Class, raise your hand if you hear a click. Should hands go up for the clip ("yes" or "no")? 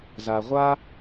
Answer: no